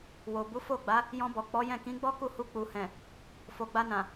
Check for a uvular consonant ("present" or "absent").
absent